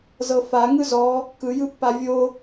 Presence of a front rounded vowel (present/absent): absent